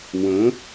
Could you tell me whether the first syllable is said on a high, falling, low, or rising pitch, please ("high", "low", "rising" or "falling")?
rising